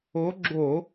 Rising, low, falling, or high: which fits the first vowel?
rising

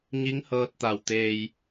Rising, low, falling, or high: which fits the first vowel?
rising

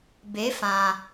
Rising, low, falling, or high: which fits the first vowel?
rising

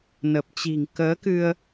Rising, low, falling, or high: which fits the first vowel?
low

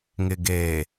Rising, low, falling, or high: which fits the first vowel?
low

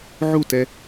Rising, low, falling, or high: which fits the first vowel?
falling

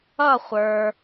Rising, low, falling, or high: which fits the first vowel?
falling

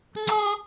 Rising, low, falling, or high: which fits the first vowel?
high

